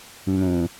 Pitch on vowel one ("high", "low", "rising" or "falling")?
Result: low